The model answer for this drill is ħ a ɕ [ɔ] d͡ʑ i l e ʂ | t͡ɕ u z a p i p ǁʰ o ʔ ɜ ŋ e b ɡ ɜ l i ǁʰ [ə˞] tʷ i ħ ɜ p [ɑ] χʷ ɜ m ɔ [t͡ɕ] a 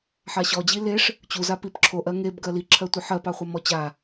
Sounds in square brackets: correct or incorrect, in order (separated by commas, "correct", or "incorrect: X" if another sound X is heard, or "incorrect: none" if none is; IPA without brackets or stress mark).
correct, incorrect: ɜ, correct, correct